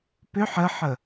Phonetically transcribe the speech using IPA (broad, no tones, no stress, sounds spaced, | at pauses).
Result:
p ʏ ħ ə ħ ə